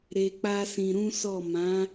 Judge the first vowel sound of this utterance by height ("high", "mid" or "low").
mid